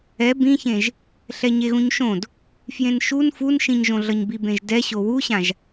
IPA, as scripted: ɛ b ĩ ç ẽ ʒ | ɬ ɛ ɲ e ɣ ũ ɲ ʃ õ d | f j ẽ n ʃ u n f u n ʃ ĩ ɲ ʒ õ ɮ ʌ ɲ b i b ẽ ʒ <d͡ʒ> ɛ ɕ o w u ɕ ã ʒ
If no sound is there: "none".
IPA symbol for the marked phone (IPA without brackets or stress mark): d